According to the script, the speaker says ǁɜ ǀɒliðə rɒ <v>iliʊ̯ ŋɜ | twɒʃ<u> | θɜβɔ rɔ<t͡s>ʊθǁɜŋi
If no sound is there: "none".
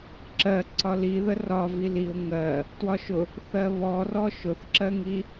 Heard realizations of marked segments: v, ʊ, ʃ

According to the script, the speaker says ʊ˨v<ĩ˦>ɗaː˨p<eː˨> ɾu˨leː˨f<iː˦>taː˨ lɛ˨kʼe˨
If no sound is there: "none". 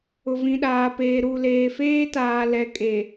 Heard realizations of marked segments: ĩ˨, eː˨, eː˦

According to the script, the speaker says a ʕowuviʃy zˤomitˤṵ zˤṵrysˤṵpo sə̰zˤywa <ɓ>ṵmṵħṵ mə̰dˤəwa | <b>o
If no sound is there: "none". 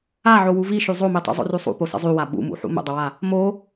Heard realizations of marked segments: ɓ, m

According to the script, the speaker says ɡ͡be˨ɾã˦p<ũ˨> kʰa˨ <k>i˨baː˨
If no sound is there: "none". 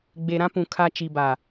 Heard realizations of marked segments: ũ˨, t͡ʃ

